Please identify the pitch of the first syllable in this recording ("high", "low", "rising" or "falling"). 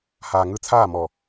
low